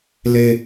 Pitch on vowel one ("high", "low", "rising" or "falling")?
high